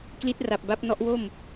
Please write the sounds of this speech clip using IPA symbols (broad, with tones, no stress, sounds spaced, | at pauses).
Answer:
k l i˦˥ t̚ r a˨˩ p̚ b a˦˥ p̚ n ɔ˦˥ ʔ w o˥˩ m